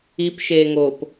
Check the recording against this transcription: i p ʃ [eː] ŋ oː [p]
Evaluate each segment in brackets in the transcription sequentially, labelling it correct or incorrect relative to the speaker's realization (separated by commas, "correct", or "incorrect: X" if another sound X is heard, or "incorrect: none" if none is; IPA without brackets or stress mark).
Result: correct, correct